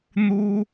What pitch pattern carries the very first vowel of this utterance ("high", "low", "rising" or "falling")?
high